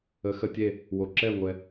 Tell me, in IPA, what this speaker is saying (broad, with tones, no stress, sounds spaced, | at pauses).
ə˩˧˩ x ə˧˩ tʲ e˧˩ | w o˩ ǁ ɛ˧˩ ŋʷ ɛ˩